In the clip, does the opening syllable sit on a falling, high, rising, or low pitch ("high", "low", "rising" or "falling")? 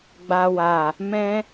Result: low